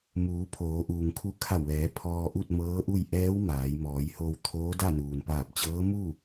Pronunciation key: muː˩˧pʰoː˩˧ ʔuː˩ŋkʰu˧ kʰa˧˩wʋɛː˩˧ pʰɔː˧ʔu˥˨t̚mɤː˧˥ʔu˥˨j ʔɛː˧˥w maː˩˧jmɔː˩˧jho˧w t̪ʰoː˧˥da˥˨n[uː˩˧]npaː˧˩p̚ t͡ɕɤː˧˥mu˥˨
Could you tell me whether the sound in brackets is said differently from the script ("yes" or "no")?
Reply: yes